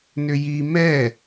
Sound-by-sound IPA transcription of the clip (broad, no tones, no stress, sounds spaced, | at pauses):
n ʏ j i m ɛ